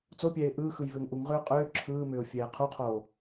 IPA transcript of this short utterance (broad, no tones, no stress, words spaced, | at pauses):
t͡sopʲɛːɪ̯ ʔɯːxɯj vʏːŋʔuŋʁʏːʊ̯ qʼʏː ǁʰɯːmʏːʊ̯ fʲɛːqʰuqʰoː